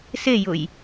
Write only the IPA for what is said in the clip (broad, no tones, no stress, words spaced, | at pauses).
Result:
sejʊj